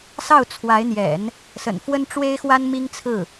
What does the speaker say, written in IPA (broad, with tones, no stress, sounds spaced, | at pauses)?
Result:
s ɑ˥˩ ʊ̯ t͡sʰ w a˧˥ ɪ̯ n̪ j ɛ̰˨˩˦ n | s ə̰˨˩ n f w ə˥ n ʈ͡ʂ w e˥ ɪ̯ x w a˥ n m i˥ ŋ t͡sʰ ɹ̩˥˩